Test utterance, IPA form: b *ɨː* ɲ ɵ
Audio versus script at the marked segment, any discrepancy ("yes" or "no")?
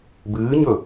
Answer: no